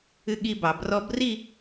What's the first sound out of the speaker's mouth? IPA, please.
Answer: ɨ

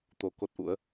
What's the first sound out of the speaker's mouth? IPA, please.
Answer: t̪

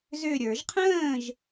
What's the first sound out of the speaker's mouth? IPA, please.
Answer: z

